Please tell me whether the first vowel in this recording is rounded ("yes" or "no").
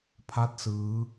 no